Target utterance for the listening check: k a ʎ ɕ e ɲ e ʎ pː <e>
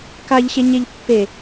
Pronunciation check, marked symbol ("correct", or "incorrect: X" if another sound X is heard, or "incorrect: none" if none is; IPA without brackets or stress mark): correct